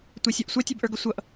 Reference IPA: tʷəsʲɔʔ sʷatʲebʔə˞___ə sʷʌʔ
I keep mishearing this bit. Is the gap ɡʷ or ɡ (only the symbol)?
ɡ